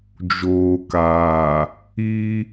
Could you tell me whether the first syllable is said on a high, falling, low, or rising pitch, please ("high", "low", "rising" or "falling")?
low